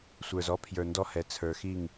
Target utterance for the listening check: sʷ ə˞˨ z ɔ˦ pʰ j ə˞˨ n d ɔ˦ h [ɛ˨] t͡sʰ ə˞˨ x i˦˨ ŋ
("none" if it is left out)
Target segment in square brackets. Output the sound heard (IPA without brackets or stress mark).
ɛ˨